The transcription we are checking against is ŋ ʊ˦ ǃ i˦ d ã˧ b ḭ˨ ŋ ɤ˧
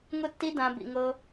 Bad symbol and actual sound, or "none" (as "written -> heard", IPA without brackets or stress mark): ǃ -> tː